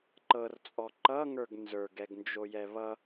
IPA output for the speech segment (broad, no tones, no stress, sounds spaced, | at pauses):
ǃ ɤ r t͡sʼ ɔ ǃ ʌ ŋ ə˞ ɡ n z ə˞ ɡ ɛ ɡ n d͡ʒ o j ɛ β ʌ